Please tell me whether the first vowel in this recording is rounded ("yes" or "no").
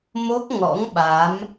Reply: yes